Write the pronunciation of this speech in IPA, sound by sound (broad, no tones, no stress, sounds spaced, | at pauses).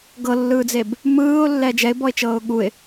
ɡ ɤ lː ɯː d͡z e b | m ɯː ʊ̯ lː ɛ d͡ʒ ɛ ɪ̯ b ɔ ɪ̯ t͡ʃ ɤː ʊ̯ ɠ u ɪ̯